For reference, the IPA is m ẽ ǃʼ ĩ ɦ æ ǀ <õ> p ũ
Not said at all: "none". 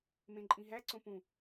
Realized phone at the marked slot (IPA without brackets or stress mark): õ